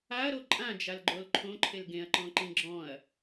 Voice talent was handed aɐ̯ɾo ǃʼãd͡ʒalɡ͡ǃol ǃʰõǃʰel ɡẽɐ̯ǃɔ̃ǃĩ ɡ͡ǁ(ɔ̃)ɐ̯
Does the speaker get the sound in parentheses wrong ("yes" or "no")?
no